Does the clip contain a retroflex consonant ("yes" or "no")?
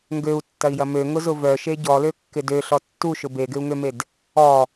no